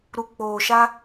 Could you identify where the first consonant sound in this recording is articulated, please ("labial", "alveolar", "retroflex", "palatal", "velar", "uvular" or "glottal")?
alveolar